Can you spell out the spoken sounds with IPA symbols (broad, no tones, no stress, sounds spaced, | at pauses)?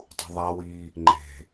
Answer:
tˤ ṳ ðˤ a w i | ŋ͡ǃ e̤